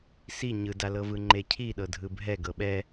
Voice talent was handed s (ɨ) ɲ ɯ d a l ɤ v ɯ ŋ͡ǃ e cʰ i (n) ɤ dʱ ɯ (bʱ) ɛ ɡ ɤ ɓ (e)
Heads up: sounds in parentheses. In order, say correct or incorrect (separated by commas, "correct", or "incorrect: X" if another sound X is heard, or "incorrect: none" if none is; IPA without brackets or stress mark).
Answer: incorrect: i, incorrect: ɗ, correct, incorrect: ɛ